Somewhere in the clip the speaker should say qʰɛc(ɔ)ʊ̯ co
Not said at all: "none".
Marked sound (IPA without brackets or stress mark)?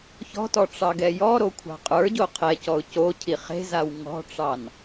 ɔ